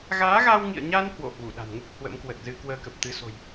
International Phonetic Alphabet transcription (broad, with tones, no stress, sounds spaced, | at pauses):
ɣ aː˨˦ ɣ a˧ w ŋ ḭ˧˨ ə̯ ɲ a˧ n h w o̰˧˨ h w u˧˩ ɗ a̤˨˩ n ŋ u˦˥ k̚ h w ə̰˧˥ m k w ə˨˩ t̚ z ɨ˧ k w əː˧ k ə˨˩ p̚ t̪ ɨ˨˦ s o̤˨˩ j